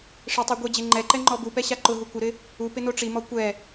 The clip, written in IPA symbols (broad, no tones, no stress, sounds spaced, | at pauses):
ʂ ɪ tˤ i ɡʷ e d͡ʑ e ŋ͡ǃ ɛ ǃ ɛ ŋ͡ǃ ɔ b u p ɛ ɕ a ǃ ʊ ɦ u kʷ ɪ ɾ ɪ | u p ɪ n o ʈ͡ʂ i m ɔ kʷ ɛ